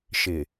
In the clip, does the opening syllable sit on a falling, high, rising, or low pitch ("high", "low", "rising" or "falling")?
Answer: low